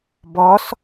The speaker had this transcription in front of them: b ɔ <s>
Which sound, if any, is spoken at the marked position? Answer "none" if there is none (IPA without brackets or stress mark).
s